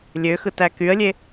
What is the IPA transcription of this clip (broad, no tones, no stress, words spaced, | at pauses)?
lʲøxɯtæ kyə̯lʲe